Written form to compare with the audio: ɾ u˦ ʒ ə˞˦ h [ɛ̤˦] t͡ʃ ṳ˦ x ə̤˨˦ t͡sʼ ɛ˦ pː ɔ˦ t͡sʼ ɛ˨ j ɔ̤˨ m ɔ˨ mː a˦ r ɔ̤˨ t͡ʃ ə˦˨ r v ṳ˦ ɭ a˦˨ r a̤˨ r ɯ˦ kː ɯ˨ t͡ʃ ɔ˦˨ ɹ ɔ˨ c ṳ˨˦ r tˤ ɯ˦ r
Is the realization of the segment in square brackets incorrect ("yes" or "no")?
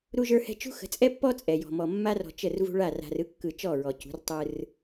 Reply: no